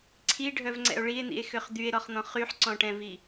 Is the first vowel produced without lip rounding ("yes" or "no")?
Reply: yes